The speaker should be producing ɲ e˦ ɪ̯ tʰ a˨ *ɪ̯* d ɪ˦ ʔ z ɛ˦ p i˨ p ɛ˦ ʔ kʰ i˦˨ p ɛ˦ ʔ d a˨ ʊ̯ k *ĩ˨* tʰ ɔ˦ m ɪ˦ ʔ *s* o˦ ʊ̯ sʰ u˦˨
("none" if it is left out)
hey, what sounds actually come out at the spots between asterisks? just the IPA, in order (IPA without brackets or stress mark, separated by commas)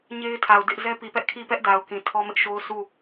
ʊ̯, ĩ˨, ʃ